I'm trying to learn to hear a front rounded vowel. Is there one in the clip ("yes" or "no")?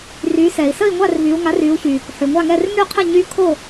yes